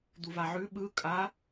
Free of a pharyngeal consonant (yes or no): no